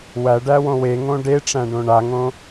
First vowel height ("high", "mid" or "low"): low